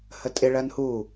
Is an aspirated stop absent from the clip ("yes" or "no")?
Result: yes